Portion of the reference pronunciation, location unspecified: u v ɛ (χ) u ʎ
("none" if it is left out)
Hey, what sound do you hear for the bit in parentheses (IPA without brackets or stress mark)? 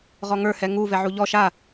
ʕ